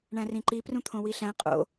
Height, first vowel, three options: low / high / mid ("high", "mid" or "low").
low